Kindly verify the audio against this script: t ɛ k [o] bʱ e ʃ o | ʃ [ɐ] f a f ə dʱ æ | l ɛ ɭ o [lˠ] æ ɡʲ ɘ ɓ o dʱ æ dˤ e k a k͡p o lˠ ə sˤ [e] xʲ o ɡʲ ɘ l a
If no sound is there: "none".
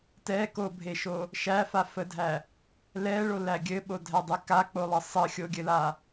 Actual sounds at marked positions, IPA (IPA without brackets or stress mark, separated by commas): o, æ, l, ɘ